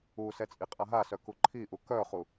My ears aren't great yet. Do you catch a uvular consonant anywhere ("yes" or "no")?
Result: yes